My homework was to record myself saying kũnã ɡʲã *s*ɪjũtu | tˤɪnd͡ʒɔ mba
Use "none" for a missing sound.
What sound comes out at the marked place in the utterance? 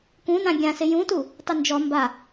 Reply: s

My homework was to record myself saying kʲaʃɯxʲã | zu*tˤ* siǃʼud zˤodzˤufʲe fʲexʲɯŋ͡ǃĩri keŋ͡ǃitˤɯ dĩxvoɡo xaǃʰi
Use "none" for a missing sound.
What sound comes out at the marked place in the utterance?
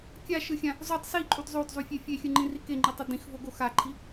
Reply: tˤ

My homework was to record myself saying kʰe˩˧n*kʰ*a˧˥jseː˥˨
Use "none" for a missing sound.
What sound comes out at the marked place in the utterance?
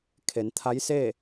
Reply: t̪ʰ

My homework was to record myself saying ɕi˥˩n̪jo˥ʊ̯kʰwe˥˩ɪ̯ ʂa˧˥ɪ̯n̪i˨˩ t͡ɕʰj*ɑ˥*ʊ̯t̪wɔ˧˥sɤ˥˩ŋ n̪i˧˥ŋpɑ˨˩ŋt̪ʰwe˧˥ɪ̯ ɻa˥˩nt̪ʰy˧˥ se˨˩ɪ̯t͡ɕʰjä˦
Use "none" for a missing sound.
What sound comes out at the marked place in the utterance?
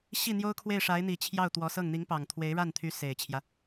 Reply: ɑ˥˩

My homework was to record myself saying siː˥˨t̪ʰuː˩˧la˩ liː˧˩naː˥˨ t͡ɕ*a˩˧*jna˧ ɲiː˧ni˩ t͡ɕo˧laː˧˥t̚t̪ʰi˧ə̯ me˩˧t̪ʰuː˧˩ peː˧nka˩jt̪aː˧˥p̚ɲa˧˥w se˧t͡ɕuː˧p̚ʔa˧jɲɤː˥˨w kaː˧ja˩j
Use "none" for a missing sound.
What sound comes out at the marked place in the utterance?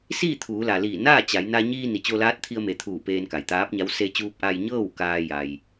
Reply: a˩˧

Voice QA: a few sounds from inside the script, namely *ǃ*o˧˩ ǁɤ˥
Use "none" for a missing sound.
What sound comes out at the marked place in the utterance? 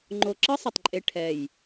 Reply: ŋ͡ǃ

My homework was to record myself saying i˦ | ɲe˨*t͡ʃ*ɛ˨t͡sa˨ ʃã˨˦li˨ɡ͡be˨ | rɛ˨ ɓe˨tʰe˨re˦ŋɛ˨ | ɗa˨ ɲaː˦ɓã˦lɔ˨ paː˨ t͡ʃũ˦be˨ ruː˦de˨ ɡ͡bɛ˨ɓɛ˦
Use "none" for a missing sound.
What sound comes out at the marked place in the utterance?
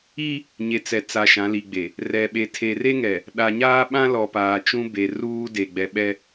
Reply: t͡s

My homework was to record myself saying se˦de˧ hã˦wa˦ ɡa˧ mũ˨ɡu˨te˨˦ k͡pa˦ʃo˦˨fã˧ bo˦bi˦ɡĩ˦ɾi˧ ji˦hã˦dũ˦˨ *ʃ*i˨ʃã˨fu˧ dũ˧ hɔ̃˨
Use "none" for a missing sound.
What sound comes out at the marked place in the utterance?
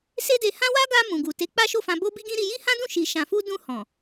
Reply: ʃ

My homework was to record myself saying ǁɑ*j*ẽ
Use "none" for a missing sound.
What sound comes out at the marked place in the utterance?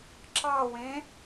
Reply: w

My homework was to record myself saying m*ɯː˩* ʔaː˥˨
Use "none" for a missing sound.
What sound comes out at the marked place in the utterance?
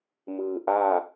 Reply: ɯː˩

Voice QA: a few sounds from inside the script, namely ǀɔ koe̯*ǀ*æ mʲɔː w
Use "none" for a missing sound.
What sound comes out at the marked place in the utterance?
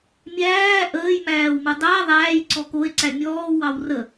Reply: ǀ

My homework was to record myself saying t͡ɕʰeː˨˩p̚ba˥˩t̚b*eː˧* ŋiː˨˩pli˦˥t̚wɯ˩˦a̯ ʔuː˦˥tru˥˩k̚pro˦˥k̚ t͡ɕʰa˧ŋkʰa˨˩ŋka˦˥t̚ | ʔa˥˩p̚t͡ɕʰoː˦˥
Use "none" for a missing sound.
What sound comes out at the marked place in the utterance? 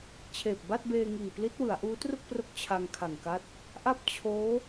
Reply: eː˧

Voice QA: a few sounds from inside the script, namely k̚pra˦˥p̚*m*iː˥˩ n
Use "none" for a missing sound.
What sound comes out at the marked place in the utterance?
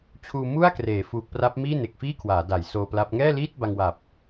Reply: m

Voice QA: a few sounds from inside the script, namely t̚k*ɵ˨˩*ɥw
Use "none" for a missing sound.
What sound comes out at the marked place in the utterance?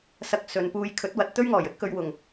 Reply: ɵ˨˧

